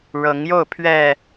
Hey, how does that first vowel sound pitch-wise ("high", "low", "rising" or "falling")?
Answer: rising